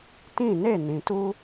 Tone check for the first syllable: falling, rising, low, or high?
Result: falling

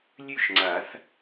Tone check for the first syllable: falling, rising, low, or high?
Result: falling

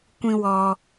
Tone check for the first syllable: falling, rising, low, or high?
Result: high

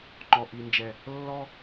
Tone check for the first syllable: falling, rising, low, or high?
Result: low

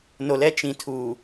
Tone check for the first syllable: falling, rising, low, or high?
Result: low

